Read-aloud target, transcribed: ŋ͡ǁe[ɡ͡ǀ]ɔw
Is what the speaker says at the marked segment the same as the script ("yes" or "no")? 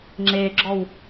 no